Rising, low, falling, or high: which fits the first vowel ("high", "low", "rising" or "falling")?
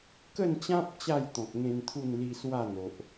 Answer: falling